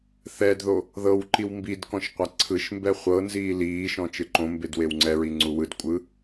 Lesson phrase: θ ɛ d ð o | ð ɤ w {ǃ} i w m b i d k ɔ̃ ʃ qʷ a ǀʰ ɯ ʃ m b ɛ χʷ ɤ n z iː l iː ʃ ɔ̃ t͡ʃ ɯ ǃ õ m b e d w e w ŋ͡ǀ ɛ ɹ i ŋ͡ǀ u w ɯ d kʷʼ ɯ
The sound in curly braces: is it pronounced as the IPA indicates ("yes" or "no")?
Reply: yes